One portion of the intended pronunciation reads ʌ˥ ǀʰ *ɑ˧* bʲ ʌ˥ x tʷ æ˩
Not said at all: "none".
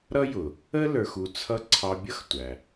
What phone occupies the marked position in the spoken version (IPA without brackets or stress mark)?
ɑ˧